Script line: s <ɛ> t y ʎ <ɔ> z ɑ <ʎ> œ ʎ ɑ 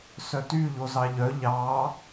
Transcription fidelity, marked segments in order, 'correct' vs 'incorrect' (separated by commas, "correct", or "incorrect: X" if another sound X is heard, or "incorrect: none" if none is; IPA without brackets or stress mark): incorrect: œ, incorrect: o, correct